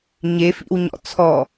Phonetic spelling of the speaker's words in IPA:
ɲefḭwɲɔ̰ t͡sʰɔ

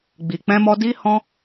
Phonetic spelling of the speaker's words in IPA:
ɡ͡bi˨k͡pɛ̃˧mɔ˧ di˦hɔ̃˦

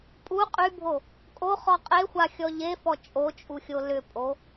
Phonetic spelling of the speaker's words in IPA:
pʼu qʼybʱo | kʼoχɔ qʼexʷaxʲɔ ʎefɔ t͡ʃʼot͡ʃʼuxʲo lʏpʼo

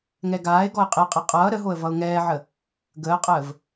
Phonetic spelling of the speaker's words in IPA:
ŋɛɡaːɪ̯ɡɔɪ̯ qʼeqʼe qʼʌː ɾəɦoə̯ vʌʊ̯ŋɛːʕə | ɡəːqʼəːv

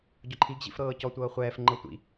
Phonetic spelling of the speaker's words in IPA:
ɟɔǃʰiɡ ʑḭfɾɤːcɔ tʷɤːχʷɛːf ŋ͡ǃɤtʷḭ

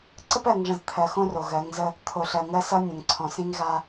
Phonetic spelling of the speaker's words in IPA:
ǀə˦pɜ˨ŋʐə̃˨z t̪ʰɜ˨xõ˦ ro˨ɣɜ˨˦ŋzə˦ | t̪ʰo˨ɬɜ˨ŋɜ˦sʌ˦ nʲə̃˨ŋǀʰɔ̃˨s ĩ˦ŋɣa˦

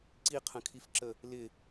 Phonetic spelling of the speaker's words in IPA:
ǀiqʰə̃kʰifǁə | lɪ

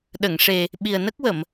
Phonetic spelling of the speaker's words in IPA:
ɗə˨˩˨ŋʂe˨˩ | ɓi˨˩ə̯nə˦˥k̚wə˨˩˨m

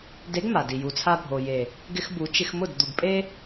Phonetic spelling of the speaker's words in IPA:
de˨˦ɡ ma˨di˨ ju˨t͡sʰa˧bʱo˨je˨ | ɡɪ˧xbu˨˦ t͡ʃɪ˧xmʊ˦˨d d̪u˨ɡpʼe˦

